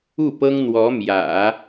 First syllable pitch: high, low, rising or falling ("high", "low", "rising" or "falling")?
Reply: falling